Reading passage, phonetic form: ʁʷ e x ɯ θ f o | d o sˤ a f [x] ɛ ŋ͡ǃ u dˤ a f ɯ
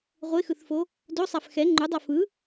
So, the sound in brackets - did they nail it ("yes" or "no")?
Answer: yes